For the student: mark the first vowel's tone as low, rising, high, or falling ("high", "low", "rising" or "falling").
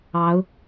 rising